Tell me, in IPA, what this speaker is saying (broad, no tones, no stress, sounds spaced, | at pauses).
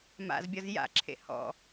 m a̰ z bʲ ɒ z j a̰ ǁʰ ḛ h ɔ̰